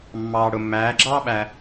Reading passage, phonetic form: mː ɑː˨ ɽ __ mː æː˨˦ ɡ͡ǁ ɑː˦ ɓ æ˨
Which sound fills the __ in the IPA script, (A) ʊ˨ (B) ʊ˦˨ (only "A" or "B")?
A